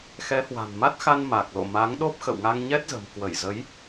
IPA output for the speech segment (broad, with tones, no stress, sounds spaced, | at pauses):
x ɛ˨˦ h w a̤˨˩ n m a˦˥ t̚ x a˧ n m a˨˩ k̚ l o̰˧˨ m a˨˦ ŋ ɗ o˦˥ p̚ x ə̰˧˨ w ŋ a˧ ŋ ɲ ɛ˦˥ t̚ z ə̤˨˩ m k w ə˧˩ j z ə˨˦ j